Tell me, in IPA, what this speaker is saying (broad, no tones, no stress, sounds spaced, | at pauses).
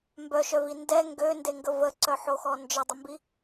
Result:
m b œ ʃ œ v i n d ɛ ŋ ɡ ø n d e ŋ ɡ ə v ə ǀ œ ħ o x ɔ n d͡ʒ ə dˤ ə m b i